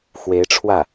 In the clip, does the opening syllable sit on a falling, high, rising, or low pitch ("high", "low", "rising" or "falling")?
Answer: rising